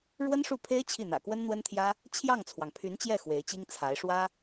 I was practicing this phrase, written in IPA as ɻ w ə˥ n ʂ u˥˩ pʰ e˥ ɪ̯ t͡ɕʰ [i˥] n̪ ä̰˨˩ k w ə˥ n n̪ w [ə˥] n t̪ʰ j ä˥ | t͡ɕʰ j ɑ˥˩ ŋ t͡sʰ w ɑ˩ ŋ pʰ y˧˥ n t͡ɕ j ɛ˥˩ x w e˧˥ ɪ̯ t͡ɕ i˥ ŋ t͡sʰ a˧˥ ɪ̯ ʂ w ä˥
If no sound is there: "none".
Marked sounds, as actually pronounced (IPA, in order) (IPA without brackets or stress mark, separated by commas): i˥˩, ə˥